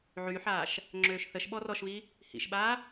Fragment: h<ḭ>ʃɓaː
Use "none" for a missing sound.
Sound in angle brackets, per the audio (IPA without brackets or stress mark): ḭ